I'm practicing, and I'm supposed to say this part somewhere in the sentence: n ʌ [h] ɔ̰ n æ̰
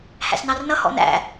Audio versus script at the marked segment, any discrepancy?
no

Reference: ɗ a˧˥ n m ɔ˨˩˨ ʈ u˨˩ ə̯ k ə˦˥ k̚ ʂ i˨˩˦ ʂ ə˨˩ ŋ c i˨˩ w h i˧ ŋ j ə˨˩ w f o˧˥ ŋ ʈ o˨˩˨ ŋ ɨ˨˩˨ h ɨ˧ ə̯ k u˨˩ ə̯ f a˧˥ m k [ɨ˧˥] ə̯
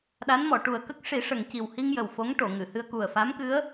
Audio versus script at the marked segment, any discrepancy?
no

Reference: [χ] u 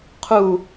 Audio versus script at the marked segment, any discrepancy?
yes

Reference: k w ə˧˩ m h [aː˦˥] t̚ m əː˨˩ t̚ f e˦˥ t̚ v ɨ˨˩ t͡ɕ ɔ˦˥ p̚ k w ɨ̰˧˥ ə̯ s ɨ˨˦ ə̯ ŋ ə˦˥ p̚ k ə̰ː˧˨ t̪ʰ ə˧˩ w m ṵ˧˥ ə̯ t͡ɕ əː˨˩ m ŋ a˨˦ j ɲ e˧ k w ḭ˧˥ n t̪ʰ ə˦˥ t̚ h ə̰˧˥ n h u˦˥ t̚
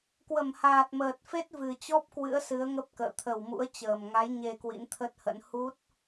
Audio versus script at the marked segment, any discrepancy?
yes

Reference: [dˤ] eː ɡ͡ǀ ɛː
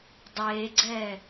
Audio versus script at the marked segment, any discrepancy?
no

